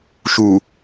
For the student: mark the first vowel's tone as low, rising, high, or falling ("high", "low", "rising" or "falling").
low